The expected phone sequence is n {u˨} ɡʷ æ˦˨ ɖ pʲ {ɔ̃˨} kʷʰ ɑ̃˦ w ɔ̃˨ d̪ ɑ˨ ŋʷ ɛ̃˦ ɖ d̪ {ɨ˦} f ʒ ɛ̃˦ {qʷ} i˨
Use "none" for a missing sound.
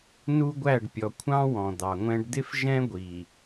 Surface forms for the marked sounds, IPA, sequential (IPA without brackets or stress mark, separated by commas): u˦, ɔ˨, ɪ˦, ɡʷ